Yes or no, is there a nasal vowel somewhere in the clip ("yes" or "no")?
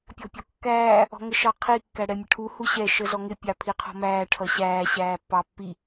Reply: no